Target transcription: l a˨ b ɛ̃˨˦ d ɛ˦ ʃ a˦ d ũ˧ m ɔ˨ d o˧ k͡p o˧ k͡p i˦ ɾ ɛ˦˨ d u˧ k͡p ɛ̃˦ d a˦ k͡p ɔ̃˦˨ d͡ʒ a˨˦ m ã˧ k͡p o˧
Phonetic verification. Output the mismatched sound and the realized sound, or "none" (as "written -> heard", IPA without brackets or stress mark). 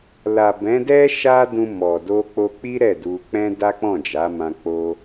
none